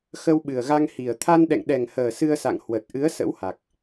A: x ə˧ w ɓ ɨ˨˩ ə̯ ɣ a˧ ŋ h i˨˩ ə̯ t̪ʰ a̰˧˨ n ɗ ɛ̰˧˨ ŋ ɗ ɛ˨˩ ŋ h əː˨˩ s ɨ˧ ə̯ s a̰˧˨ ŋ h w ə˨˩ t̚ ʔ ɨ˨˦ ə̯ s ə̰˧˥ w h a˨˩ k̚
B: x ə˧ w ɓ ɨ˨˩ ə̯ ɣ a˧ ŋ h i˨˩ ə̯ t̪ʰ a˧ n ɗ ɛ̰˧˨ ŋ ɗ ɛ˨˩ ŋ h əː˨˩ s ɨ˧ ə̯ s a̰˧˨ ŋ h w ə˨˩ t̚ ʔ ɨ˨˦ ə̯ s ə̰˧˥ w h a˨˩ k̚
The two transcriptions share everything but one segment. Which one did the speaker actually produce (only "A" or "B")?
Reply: B